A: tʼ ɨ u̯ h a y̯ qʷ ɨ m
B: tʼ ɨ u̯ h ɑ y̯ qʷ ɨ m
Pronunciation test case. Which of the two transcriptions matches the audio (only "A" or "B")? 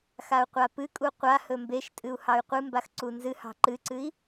B